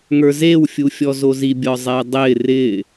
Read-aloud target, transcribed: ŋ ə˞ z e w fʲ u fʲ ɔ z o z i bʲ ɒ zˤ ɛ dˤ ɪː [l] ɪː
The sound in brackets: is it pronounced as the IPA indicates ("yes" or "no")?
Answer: no